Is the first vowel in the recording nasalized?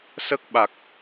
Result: no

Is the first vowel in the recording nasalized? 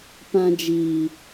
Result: yes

